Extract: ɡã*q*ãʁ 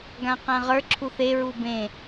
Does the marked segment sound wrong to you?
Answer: no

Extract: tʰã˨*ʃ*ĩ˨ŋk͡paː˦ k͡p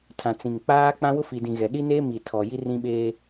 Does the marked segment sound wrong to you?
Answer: yes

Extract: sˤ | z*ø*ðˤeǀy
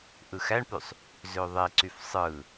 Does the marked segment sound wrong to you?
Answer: no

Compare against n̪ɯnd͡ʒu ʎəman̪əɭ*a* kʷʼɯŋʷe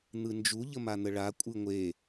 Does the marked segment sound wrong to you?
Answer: no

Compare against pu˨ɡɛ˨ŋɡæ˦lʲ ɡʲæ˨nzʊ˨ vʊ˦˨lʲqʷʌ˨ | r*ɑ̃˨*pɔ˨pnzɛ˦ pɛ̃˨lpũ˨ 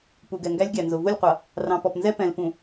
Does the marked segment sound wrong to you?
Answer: no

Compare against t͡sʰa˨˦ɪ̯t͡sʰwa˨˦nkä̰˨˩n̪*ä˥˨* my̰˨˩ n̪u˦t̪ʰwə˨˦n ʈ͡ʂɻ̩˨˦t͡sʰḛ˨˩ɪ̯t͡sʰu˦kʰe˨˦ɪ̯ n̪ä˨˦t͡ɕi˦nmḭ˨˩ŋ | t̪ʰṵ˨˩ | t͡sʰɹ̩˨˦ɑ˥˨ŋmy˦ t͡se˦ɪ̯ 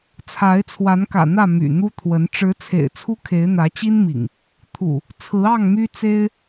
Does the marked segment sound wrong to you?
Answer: no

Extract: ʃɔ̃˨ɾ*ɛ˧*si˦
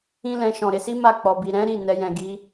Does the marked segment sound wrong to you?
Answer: yes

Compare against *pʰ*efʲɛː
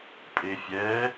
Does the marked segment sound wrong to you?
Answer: yes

